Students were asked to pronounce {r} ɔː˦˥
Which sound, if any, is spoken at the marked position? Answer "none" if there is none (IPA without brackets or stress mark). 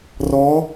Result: r